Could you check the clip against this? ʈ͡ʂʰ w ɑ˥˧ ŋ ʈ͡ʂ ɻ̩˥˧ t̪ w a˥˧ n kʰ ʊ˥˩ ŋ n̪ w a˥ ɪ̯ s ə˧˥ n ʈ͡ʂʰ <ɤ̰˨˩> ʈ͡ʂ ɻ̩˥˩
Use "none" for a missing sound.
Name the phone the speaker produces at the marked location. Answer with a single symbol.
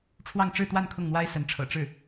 ɤ̰˨˩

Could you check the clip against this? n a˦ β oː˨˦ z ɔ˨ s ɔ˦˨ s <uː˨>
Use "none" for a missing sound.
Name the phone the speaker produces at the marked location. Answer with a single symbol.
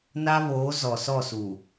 uː˨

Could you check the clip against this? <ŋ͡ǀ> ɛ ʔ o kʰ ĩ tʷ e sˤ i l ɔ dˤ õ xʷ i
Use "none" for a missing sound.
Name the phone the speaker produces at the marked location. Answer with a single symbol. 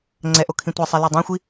ŋ͡ǀ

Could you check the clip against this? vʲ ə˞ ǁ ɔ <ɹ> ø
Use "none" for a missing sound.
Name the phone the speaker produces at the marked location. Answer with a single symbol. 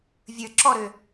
ɾ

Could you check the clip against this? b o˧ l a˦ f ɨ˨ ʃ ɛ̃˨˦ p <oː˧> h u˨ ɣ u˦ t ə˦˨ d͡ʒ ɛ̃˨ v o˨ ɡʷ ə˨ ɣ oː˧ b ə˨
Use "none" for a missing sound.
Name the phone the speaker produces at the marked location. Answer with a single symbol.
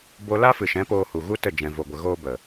oː˧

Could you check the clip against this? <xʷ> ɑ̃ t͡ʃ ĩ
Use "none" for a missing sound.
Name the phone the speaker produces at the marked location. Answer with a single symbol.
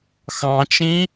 x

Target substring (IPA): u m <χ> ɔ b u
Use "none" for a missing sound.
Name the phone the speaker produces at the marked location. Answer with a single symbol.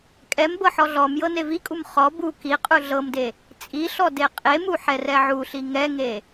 χ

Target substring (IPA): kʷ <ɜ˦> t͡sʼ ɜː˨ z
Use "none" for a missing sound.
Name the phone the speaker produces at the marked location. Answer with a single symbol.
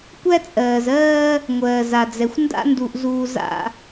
æ˦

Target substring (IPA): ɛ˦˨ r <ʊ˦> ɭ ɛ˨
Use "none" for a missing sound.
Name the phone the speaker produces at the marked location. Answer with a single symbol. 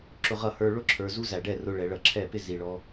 ʊ˦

